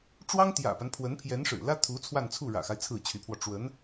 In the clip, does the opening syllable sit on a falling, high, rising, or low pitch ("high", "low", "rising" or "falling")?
high